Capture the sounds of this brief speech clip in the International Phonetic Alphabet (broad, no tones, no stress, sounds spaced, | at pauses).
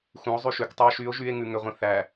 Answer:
x ũ o̯ zˤ ʉ ʃ ʉ k tˤ u o̯ ʃ y o̯ ʒ y e̯ ŋ ʉ ŋ ʏ ʁʷ ĩ θ æ